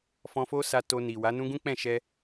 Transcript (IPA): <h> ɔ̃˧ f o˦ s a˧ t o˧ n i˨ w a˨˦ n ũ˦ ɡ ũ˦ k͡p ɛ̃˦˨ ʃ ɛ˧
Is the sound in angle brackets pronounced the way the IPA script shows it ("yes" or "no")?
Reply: no